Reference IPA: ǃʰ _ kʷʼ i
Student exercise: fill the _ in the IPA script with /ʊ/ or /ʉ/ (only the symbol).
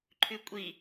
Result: ʉ